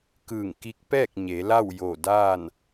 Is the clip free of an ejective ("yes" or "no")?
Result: yes